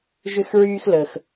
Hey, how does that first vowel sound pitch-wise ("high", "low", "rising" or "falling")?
low